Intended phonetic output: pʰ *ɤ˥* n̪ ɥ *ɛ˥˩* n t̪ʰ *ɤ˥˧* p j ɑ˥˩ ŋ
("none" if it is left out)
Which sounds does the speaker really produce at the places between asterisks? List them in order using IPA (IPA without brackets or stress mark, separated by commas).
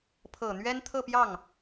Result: ɤ˨˩, ɛ˥, ɤ˥˧